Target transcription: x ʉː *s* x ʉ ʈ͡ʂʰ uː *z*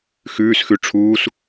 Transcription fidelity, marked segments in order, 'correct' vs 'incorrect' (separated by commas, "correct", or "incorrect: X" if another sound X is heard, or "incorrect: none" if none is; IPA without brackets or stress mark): correct, incorrect: s